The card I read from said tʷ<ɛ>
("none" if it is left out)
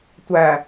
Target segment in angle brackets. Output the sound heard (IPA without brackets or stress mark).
æ